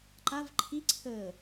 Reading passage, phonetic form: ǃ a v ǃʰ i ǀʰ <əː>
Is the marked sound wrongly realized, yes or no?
no